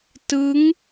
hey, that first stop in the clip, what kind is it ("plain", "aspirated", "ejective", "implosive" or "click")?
plain